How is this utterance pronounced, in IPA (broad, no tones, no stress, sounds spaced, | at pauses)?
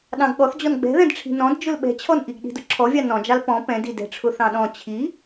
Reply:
ɗ ɑ̃ ɡ ɠ ɔ θ d͡ʑ ɔ n ɡ͡b ɛ̤ ð ɛ̃ d ʈ͡ʂʰ i̤ n ɔ̃ d d͡ʒ ʊ l ɓ ɛ̤ t͡ɕʰ ɔ n ʔ i ɡ ɗ i̤ d ʊ ǁʰ ɔ vʲ ɑ n ɔ̃ d͡ʒ ɑ l p ɔ̃ p ɛ̃ d i d ɛ̤ ʈ͡ʂʰ ʊ θ ɑ̃ ɗ ɔ̃ t͡ɕʰ i